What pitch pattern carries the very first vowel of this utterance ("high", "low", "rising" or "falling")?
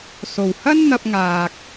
low